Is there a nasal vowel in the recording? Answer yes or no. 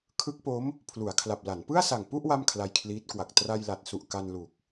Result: no